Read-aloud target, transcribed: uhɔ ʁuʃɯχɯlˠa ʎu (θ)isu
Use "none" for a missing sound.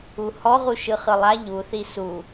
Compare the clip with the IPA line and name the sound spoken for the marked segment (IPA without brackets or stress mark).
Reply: θ